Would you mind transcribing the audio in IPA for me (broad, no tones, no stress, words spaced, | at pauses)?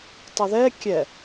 tˤʊðɛ kʲɛ